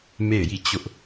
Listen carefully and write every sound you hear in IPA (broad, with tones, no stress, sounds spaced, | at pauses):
m e˦˨ ɪ̯ j i˦˨ t͡ɕ ʊ˦ ʔ